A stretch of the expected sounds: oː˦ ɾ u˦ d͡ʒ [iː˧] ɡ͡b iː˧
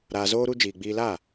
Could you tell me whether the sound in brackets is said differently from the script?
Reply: yes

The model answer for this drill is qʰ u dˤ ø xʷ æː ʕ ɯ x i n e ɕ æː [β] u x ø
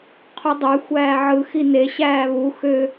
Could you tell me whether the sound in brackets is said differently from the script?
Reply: no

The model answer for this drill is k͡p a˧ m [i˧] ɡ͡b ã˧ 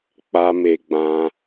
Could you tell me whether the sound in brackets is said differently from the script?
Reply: yes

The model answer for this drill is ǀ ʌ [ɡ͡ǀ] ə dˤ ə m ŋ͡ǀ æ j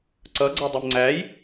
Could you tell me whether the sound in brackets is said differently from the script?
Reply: no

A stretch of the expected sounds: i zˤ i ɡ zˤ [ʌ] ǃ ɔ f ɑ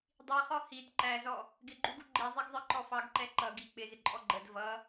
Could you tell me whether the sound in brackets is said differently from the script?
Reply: yes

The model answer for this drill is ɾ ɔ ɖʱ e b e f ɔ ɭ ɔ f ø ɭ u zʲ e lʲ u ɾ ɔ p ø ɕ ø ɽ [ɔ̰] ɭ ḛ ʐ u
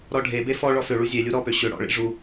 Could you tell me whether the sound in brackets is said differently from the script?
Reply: no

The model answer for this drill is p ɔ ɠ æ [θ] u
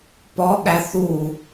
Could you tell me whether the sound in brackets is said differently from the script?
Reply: no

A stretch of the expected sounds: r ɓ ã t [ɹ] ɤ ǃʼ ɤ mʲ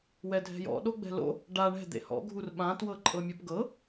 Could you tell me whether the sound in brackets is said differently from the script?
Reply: yes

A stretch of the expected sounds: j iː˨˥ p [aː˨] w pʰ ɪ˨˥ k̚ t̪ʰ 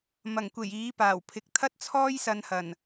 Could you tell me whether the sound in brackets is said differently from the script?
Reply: yes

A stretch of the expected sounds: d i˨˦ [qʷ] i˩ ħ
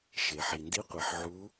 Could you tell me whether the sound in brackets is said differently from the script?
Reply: no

